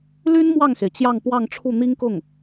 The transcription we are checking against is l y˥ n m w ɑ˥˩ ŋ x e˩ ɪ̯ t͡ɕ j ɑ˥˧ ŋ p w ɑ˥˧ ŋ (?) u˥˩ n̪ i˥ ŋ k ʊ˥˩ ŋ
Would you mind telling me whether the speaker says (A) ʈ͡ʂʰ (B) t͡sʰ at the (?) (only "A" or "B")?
A